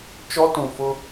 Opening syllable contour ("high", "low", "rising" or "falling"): high